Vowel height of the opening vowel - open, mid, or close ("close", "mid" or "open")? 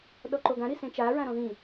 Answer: mid